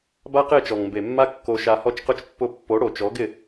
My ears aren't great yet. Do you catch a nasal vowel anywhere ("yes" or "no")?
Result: no